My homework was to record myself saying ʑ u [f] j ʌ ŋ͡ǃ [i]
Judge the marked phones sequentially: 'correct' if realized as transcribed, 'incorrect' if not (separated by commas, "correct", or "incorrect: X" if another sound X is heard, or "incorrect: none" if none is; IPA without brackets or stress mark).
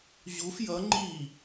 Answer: correct, correct